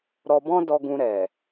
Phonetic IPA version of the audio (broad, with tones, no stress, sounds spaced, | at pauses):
ɾ ɔ˧ b ɔ̃˦ d ɔ˧ ɡ ũ˧ ɾ ɛ˨